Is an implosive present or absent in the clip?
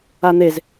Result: absent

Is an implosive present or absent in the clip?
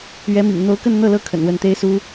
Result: absent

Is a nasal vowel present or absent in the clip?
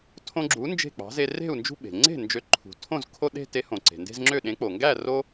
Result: present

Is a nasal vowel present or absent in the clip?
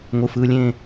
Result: present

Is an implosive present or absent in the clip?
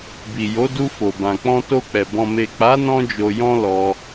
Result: absent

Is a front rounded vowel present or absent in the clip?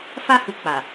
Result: absent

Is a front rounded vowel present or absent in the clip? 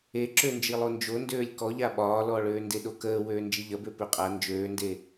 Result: present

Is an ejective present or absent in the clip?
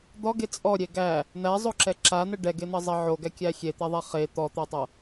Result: present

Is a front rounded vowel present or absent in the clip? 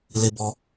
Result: absent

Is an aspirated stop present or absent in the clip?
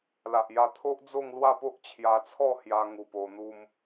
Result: present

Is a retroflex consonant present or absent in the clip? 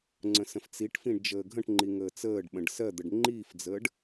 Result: present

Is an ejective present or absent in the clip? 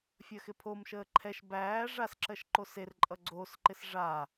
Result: present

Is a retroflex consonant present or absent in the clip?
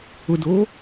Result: absent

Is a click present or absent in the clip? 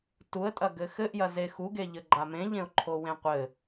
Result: present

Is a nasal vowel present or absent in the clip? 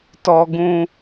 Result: present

